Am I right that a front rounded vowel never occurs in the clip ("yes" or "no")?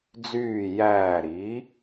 no